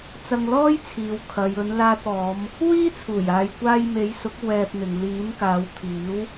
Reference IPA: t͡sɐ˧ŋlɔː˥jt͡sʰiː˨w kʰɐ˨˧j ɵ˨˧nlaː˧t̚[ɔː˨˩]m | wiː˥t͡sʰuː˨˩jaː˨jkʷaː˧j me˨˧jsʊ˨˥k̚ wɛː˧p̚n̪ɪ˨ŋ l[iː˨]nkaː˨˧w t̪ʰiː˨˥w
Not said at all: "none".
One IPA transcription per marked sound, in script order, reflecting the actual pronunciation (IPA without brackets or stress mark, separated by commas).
ɔː˨˧, iː˨˥